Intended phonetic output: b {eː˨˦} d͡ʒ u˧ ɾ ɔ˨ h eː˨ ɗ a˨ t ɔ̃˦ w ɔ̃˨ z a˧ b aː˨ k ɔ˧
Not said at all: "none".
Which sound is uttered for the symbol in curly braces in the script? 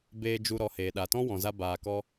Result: eː˧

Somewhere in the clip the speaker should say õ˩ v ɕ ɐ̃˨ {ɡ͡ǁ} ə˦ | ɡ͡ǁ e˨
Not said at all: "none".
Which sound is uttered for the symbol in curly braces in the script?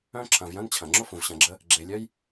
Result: ɡ͡ǁ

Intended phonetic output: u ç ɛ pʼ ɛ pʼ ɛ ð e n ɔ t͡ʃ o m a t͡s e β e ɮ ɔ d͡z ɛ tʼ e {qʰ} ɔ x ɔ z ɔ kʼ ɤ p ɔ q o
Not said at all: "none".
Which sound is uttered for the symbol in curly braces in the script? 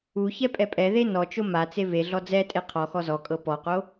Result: qʰ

